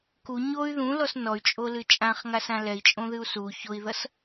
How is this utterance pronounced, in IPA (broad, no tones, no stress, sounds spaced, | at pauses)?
k u ɲ o y̯ ð ũ l ɔ s n ɔ y̯ t͡ʃʼ o l ɨ t͡ʃʼ ã χ ŋ a s ã l ɛ i̯ t͡ʃʼ õ ð ɨ u̯ s u ç o i̯ ð ʌ s